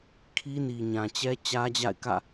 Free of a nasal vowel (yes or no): no